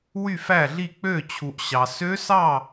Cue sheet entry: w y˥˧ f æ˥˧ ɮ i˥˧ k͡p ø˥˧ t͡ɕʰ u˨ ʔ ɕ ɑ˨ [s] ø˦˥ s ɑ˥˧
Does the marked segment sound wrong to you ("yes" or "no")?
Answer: no